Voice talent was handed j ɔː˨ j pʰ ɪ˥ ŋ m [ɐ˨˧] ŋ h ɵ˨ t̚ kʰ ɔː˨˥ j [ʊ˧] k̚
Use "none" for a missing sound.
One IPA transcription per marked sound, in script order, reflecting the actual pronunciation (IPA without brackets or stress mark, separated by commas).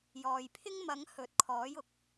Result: ɐ˨˧, ʊ˨